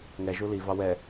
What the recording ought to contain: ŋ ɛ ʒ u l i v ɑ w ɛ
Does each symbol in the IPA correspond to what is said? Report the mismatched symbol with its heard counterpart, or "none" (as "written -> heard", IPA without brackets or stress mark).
none